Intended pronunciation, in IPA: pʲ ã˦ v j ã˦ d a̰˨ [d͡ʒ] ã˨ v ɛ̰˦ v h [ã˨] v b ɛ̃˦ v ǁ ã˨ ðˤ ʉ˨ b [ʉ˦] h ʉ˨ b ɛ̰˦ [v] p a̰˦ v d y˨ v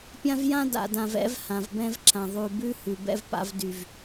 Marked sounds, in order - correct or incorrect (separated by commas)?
incorrect, correct, correct, correct